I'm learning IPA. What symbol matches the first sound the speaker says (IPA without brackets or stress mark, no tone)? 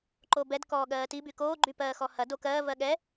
ǃ